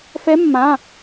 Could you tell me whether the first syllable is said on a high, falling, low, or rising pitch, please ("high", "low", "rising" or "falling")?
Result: rising